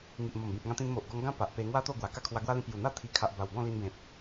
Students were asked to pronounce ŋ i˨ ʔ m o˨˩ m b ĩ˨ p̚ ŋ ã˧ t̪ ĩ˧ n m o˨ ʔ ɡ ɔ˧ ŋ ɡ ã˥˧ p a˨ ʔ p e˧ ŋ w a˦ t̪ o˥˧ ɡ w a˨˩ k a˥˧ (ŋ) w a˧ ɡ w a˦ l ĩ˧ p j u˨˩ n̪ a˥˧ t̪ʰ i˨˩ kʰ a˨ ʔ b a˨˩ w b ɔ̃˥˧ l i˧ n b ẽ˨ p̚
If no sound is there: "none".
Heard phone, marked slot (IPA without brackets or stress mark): kʰ